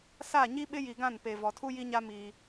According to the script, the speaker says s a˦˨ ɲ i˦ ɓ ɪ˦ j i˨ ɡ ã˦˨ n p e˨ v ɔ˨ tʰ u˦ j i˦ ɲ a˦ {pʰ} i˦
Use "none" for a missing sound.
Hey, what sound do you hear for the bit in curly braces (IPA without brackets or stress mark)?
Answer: m